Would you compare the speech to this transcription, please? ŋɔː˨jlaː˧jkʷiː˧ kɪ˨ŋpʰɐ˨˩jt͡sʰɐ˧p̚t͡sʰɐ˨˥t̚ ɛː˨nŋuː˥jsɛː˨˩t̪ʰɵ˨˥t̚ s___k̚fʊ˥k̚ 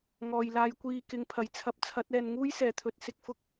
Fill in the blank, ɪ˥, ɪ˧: ɪ˧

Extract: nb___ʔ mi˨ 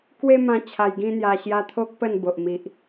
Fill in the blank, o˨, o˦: o˨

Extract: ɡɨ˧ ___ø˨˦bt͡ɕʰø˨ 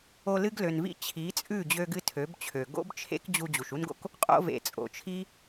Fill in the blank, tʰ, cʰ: tʰ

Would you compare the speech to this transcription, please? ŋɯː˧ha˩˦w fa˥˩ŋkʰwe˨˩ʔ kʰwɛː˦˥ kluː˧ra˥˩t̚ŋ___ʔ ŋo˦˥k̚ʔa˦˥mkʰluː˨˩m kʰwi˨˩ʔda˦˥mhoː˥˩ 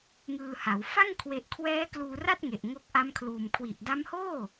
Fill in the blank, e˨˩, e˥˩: e˨˩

